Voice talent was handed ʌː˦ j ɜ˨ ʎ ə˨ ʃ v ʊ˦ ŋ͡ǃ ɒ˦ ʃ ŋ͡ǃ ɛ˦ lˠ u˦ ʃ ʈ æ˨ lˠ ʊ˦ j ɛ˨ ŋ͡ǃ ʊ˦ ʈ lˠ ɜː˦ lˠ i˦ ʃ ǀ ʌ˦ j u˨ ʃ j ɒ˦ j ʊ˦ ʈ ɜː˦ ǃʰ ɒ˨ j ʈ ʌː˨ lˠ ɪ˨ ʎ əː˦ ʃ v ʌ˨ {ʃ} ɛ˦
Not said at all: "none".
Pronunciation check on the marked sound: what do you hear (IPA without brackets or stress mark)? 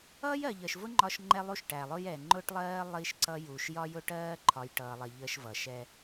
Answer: ʃ